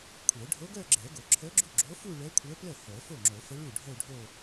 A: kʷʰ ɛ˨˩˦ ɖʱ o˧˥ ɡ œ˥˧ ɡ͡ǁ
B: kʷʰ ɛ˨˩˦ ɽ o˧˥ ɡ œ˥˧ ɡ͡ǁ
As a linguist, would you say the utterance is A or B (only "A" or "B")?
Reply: A